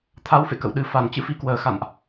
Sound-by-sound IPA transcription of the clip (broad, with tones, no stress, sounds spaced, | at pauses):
t̪ʰ a˨˦ w f ḛ˧˨ k ə̰˧˨ w ɗ ɨ˨˩ f a˧˩ n t͡ɕ ɨ̰˧˥ f i˨˦ k w əː˨˩ x a̰˧˨ n ʔ